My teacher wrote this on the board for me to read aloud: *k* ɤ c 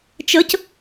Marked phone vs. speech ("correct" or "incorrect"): incorrect